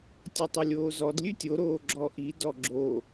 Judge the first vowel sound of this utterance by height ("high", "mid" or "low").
mid